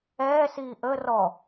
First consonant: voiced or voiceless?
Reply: voiceless